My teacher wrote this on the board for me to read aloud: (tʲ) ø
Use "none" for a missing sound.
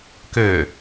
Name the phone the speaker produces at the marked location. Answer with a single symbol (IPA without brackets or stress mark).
k